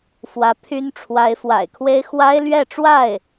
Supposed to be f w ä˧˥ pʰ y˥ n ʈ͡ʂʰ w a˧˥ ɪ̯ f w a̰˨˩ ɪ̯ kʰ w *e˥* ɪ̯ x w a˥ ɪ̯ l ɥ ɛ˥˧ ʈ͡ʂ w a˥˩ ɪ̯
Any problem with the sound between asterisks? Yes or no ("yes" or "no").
no